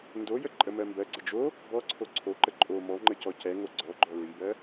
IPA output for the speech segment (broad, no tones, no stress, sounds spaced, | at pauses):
n d o j ə ǃʼ ə m ɜ m b ɜ ɡ͡ǀ ə d͡ʒ o | b ɔ ǀʰ o ǀʰ o ǃ ə ǃʼ o m ɔ ŋ͡ǃ ə c ɔ c ɛ ŋ o ɡ͡ǀ ɔ ɡ͡ǃ ɔ ɹ i b ɜ